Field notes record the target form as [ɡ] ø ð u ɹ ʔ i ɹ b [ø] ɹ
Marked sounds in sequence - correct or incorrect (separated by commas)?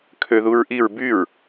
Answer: incorrect, incorrect